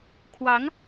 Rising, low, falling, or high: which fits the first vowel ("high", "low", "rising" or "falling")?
rising